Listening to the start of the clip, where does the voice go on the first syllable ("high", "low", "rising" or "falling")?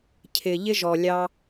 low